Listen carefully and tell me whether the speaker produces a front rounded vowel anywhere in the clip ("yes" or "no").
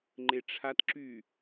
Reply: yes